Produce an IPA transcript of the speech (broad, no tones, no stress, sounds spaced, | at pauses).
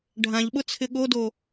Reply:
ɖʱ ã ʎ ɓ ʊ t͡sʰ ɪ ɠ o d o